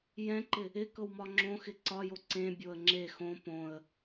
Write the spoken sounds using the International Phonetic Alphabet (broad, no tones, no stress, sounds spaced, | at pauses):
j ɛ̃ ǃ ɪ | ɪ k ɤ w m ɒ ŋ͡ǁ õ x ɪ ǀ ɒ j o ǀ ẽ bʲ o ə̯ ŋ͡ǁ e x õ p õ ə̯